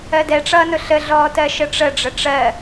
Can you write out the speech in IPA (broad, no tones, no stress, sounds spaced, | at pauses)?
ɜ d ɛ ʈ͡ʂ ʌː n ʊ ɬ ə ɮ ɔː t ɜ ʃ ə ʈ͡ʂ ə ɖ͡ʐ ə ʈ͡ʂ ɜ